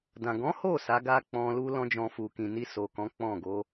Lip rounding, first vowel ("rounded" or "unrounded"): unrounded